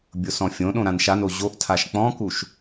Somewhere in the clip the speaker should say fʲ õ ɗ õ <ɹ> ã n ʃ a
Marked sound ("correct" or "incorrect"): incorrect